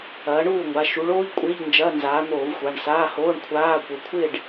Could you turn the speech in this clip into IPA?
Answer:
ɐː˨˦ ɳ uː˥˨ ŋʷ a˩˧˩ ʃ u˨˦ ɭ oː˧˥˧ ʎ kʷʼ ɪː˧˥˧ ʎ n d͡ʒ ɐː˧˥˧ n z aː˨˦ n̪ oː˧˩˧ v xʷ a˩˧˩ ɳ s aː˧˥˧ h oː˧˥˧ ɳ kʷʰ aː˧˥˧ kʷ ə˩˧˩ kʷʰ ɪ˥˨ ɖ

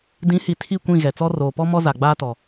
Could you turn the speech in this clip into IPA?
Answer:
d ĩ˨˦ h i˨ tʰ i˦˨ kʷ ĩ˦˨ ɣ ɛ˨ t͡s ɔ˦ r oː˨ p ɔ˦ m ɔ˦ z a˨ ɡ͡b aː˦ t ɔ˨

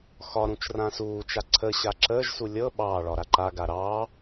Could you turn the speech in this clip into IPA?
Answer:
x ɒ ɾ ũ t͡ʃ r ã s uː t͡ʃ a ǀʰ ə ɕ a ǁ əː ʒ s u lʲ ɤ ɓ ɑː ɭ ɒ ɾ a ǃ a ɡ a ɾ ɑː

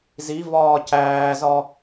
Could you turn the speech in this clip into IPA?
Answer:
z i v ɒː c æː z ɒ

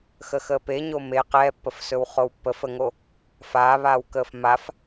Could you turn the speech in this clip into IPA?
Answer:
x ə x əː p e ɲ o m e q ɛː pː ə f s ɵ w χ o w pː ə f ə ŋ o | f aː β aː w k əː f m a f

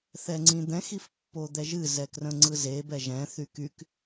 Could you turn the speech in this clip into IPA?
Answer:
θ ɛ ŋ͡ǀ ĩ d̪ ɛ̃ x i f pː o d̪ ɛ ʒ ɨ z ɛ k r ə̃ ŋ͡ǀ ɯ z e b ɛ ʒ ɛ̃ θ y k y k

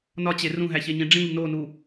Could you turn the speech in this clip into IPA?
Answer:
n ɒ t͡ɕ e r ũ ɦ æ ç e ɲ ĩ ɖ͡ʐ ĩ ʎ n o n u

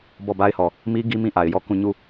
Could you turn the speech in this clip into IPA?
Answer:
b ɔ˦˨ b a˦ ɪ̯ h ɔ˨ | m i˦ ɡ i˦ m ĩ˦˨ ʔ a˨ ɪ̯ j ɔ˦˨ k ũ˦˨ ɲ u˦˨

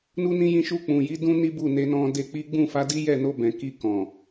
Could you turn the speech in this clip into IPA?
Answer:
n u˦ n ĩ˦ j ĩ˦˨ ʃ u˧ k͡p ũ˨ j i˨˦ d ũ˦ n i˦ b u˦˨ n e˧ n ɔ̃˧ d e˧ k͡p i˦ ɡ͡b ũ˦˨ f a˨˦ d i˦ j ɛ˦˨ n o˧ b ɛ̃˨ k i˧ k ɔ̃˨

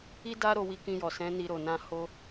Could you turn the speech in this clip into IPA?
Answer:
i˦ d a˦ ɾ o˧ w i˧ k ĩ˧ j ɔ˨ s ɛ̃˨˦ n i˧ ɾ o˨ n ã˧ h o˧

